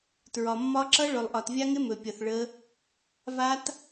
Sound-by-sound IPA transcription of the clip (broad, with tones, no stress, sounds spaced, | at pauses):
t ɹ ɒ˨ mː ɒ˦˥ ǁ ʌ˦˥ ɭ ɵ˨ lˠ ʔ ɒ˨ t vʲ a˦˥ ŋ ɪ˦˥ m ɵ˨ pʲ ʌ˨ θ ɭ ə˦˥ | v a˦˥ t